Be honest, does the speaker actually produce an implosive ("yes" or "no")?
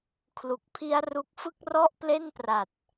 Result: no